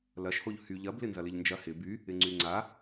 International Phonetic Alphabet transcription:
l ɐ ʃ h o ʎ h y ʎ ɐ b l ɪ n z ɐ l ɪ ʎ n d͡ʒ ɐ h ɪ b y | ɪ ŋ͡ǀ y ŋ͡ǀ a

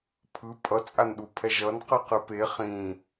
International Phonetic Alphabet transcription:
pʰ ɯ pʼ ʌ t͡sʼ a n ɗ u pʰ ɛ ʒ ʌ n q ɯ q ɯ p e χ ĩ

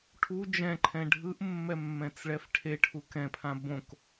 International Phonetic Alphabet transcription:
ʈʰ u d͡ʒ ɛ̃ ǃʰ ɛ̃ ɖʱ ɯ ʔ mː ɛ mː ɛ̃ t͡s ɭ ɛ f ʈʰ e ʈʰ u k ɛ̃ pʰ ã b õ k

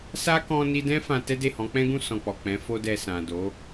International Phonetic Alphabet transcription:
s a˦ k ɔ̃˧ n i˧ d ɛ̃˦ f ã˧ t ɛ˦ d e˦˨ h ɔ̃˨˦ k͡p ɛ̃˦ ɡ ũ˦˨ s ɔ̃˧ k͡p ɔ˨ k͡p ɛ̃˨˦ f o˦ d ɛ˧ s ã˨ d o˨˦

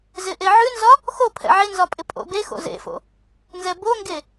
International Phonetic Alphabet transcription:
z ɪ ʔ e ʕ ʉ n z ɒ | x o pʰ ɛ̰ ʕ ɪ n z ɒ pʼ ɪ pʼ o̰ b e x o̰ z ḛ f o̰ | n z ɛ b o ŋ ɡ e

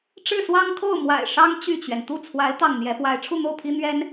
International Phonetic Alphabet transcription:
ʈ͡ʂ ɻ̩˥˩ s w ɑ˥ ŋ kʰ o˥˩ ʊ̯ m w a̰˨˩ ɪ̯ ʂ ɑ˥ ŋ t͡ɕ y˥˩ t͡ɕ ɥ ɛ˩ n t̪ u˥˩ t͡sʰ w a˧˥ ɪ̯ t̪ ɑ˥˩ ŋ n̪ j ɛ˥ p w a˥ ɪ̯ ʈ͡ʂʰ u˥˧ n̪ o˥˩ ʊ̯ pʰ i˥ n̪ ɥ ɛ˥ n

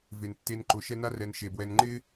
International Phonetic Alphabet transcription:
v e˩ n tː e˨ n ǃ ʊ˩ ʃ ɛ˦ n a˥ r ɛ˨ n ʃ e˩ b w ɛ˨ n ŋ͡ǃ ɪ˥

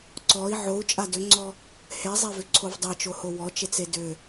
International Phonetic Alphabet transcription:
ǀ ɔ i̯ ʕ o u̯ t͡ʃʼ a d ʏ ŋ͡ǀ ɔ | h e zˤ e v ʏ ǀʰ o v dˤ e t͡ʃ o h o w ɔ t͡ʃ e t͡s e d ʏ

